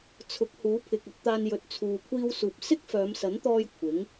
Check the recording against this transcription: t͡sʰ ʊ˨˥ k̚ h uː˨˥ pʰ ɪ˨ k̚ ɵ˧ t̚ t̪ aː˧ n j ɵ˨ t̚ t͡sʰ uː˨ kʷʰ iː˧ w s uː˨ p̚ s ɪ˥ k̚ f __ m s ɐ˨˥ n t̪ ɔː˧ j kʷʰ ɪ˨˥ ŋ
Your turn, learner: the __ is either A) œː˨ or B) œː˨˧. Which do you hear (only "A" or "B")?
B